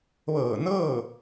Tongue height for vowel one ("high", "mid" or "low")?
mid